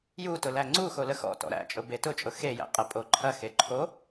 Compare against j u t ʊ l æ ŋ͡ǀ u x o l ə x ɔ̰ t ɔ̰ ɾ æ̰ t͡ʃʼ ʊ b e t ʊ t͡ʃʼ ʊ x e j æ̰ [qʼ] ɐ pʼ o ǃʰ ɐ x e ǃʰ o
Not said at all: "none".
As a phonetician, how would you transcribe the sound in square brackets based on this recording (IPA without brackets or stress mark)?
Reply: qʼ